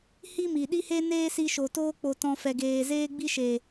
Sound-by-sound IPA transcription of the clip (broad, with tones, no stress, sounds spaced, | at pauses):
h i˦ m i˨ ɗ i˦ h e˦ n eː˦ s i˧ ʃ o˨ t oː˦ k͡p o˧ t ɔ̃˧ f ɛ˨ ɡ eː˨ z eː˦ ɡ͡b i˦ ʃ eː˨